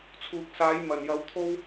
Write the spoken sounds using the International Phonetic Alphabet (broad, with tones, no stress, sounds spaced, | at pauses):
t͡sʰ uː˨ k̚ s aː˨˥ j m ɐ˨˩ n j ɐ˨˥ w t̪ʰ o˥ w